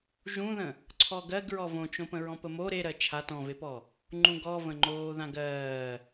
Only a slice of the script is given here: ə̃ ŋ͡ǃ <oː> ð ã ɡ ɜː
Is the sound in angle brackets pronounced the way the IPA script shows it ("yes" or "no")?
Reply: yes